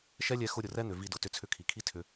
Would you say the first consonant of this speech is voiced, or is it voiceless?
voiceless